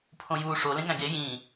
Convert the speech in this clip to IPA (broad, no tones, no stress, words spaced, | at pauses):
pʰõjuːʂo lẽŋæ̃ɡe jĩː